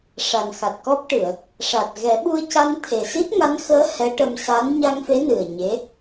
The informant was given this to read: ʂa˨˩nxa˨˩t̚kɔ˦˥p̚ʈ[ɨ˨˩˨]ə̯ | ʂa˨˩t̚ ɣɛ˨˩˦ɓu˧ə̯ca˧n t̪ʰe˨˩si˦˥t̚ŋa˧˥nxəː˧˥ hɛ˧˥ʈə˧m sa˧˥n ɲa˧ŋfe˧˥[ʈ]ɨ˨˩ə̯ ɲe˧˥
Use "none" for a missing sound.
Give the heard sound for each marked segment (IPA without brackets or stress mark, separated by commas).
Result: ɨ˨˩˨, n